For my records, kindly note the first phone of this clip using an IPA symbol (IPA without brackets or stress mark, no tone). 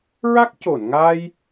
ɹ